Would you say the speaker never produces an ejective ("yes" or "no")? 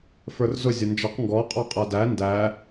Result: no